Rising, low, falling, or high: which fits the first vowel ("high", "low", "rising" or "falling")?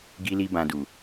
high